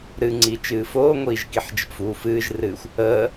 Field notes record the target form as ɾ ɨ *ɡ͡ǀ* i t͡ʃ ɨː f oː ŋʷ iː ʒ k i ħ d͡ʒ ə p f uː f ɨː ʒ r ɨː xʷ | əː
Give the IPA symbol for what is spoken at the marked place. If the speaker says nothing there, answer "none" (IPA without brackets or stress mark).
ŋ͡ǀ